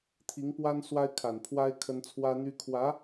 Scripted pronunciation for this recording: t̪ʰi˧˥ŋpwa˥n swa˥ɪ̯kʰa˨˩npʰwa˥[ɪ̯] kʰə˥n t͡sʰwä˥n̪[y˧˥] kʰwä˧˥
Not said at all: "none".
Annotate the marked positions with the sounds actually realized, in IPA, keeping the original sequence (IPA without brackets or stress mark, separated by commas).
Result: ɪ̯, y˥